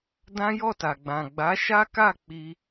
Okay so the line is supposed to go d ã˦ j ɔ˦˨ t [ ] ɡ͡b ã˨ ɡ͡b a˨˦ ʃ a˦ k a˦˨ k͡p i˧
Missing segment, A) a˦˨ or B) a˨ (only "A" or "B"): B